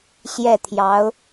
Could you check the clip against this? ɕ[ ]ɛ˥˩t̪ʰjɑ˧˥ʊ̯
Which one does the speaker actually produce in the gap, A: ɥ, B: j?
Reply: B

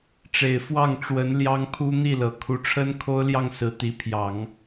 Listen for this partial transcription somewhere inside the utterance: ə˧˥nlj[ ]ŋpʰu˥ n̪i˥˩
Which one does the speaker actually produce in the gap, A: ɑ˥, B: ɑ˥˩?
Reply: A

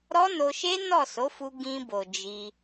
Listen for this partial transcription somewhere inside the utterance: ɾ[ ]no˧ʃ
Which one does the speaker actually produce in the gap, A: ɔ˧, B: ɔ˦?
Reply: B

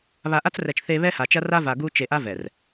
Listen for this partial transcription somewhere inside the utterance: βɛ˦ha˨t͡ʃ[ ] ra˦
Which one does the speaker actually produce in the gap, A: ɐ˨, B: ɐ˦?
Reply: B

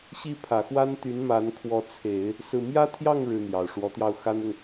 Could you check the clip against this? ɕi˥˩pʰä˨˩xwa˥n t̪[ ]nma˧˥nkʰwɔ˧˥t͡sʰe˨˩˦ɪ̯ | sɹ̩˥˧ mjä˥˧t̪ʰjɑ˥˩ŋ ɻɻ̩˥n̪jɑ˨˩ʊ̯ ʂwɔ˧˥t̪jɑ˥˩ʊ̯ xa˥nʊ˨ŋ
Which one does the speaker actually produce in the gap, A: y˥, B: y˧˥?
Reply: B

